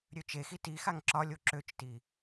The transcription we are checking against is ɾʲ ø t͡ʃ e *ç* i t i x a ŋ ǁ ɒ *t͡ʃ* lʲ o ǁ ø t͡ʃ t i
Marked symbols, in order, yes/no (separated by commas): no, no